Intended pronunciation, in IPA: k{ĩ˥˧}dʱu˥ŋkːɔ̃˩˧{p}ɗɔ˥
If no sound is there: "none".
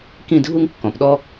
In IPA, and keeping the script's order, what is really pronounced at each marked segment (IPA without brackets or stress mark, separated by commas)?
ĩ˥˧, p